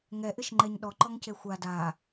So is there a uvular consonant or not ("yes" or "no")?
no